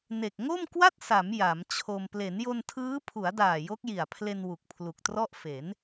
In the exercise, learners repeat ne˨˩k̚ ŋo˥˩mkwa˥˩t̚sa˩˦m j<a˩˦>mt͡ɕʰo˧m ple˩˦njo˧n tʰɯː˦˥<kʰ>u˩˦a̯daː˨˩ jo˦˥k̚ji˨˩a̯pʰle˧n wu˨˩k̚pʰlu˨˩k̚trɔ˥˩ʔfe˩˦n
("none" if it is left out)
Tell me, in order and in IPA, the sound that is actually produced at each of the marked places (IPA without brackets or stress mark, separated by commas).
a˩˦, pʰ